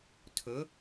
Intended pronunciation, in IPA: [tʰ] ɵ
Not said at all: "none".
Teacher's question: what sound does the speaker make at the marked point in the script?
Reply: tʰ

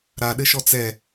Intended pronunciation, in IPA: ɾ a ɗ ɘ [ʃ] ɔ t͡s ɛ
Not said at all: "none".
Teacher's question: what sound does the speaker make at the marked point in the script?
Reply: ʃ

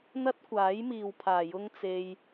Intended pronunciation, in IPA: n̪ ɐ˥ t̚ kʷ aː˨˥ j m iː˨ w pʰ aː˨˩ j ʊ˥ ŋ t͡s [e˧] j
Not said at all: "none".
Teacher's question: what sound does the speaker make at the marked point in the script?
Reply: e˧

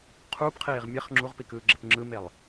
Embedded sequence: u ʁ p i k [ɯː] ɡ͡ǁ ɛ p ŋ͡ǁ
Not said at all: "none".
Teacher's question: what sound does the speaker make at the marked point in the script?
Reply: ɯː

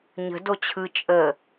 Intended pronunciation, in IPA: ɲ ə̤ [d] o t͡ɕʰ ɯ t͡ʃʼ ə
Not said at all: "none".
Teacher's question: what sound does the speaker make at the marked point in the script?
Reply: d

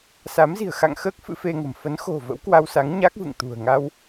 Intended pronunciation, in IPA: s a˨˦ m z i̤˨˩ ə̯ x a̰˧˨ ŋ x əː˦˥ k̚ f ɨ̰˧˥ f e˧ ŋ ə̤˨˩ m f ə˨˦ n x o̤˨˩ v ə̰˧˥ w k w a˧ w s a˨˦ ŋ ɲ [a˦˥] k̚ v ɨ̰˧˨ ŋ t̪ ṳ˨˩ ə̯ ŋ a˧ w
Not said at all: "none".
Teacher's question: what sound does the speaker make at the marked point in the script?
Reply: a˦˥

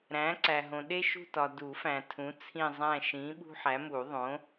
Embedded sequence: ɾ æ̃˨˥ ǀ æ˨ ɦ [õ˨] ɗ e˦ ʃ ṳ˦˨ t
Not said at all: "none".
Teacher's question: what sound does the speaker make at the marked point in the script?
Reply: õ˨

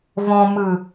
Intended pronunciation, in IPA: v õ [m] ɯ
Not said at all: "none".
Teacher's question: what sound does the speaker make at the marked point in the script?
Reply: m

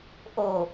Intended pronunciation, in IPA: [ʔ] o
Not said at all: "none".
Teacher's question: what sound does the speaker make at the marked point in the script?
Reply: ʔ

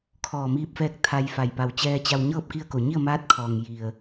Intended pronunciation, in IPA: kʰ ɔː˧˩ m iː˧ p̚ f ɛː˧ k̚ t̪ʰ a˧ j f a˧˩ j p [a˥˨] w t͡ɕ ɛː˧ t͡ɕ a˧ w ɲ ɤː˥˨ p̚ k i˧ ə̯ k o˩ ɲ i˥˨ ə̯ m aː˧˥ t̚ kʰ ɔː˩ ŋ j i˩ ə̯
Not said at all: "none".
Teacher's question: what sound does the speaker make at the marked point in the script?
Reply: a˧˩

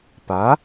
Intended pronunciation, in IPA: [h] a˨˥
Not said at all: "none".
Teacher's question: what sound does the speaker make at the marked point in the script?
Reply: p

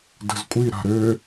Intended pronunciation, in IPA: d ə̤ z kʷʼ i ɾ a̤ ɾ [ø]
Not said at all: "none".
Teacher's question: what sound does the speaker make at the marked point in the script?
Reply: ø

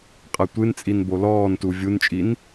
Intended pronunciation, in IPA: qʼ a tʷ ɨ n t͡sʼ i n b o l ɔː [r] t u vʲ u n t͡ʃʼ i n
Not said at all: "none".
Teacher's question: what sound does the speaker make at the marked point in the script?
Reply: n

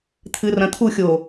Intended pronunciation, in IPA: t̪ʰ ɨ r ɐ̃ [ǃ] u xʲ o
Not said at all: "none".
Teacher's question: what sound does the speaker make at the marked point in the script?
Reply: t̪ʰ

